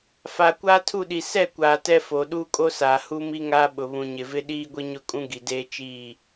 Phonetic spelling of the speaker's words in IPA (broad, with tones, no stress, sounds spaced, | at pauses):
f a˨ kʷ aː˦ tʰ u˦˨ ɗ i˨ s ɛ˦˨ kʷ aː˨ t ɛ˦ f o˨ ɗ uː˦ kʼ o˦ s aː˨ h u˦ m i˦ ŋ aː˦ ɓ ʊ˨ β ũ˨ ɲ ɪ˨ v ɪ˦ ɗ iː˦ ɡʷ i˦ ɲ ʊ˦ kʼ ũ˦ ɡ i˨ d eː˦ t͡ʃ iː˦˨